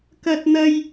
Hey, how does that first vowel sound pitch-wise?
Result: high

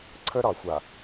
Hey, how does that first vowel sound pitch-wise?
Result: high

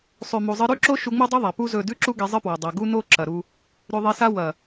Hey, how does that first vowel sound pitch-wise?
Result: low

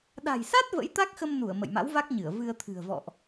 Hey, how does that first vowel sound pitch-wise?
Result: low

